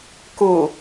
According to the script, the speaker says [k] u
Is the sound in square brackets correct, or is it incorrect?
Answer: correct